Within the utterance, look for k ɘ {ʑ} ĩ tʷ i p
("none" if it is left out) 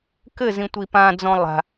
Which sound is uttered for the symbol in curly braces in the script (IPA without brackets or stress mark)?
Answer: z